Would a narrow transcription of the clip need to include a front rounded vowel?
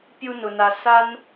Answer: no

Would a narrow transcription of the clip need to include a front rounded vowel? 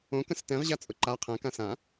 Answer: no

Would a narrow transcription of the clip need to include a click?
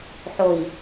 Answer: no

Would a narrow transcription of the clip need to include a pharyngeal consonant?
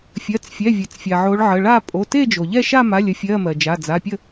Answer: yes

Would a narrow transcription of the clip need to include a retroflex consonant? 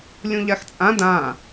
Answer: no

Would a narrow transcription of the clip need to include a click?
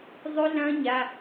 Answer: no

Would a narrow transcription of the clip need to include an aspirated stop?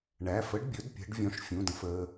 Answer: no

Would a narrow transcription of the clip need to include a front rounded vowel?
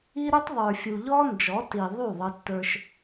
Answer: yes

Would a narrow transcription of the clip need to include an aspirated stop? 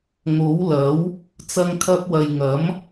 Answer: yes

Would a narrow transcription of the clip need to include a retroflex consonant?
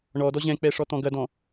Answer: yes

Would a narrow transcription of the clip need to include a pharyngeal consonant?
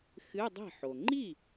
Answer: yes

